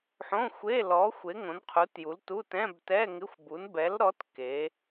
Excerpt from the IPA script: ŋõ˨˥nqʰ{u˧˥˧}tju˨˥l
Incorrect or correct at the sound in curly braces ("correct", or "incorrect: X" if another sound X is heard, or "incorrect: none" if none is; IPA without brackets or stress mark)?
incorrect: u˨˥